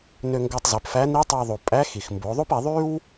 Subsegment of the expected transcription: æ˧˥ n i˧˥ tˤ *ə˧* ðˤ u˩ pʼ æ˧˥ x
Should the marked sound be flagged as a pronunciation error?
yes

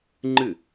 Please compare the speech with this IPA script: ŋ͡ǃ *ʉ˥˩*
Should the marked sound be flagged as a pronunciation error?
yes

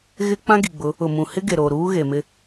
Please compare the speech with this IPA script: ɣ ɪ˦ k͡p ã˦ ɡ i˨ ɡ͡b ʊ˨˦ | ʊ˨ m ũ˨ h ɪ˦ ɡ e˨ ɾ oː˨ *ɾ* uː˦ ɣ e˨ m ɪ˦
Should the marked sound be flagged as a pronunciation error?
no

